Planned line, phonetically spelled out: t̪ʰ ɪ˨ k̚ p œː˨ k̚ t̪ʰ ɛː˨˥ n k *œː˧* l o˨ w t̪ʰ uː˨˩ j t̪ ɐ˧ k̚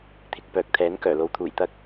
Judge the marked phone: incorrect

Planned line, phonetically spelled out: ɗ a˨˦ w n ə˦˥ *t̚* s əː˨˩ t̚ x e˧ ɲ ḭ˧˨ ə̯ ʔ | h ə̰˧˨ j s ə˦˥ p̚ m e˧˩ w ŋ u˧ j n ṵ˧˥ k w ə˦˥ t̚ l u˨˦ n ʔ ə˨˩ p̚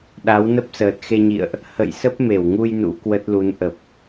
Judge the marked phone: incorrect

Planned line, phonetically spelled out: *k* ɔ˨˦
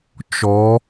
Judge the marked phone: incorrect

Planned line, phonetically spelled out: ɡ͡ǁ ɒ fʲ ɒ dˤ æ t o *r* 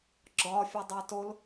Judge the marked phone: incorrect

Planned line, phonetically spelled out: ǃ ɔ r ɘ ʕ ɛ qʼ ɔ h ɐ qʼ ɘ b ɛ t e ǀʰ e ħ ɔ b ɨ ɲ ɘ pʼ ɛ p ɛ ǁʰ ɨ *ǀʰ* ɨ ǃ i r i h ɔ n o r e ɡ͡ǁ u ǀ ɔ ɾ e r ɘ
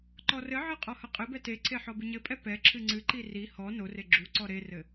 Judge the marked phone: incorrect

